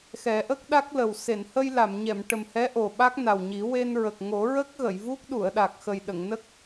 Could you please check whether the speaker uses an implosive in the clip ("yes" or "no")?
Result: yes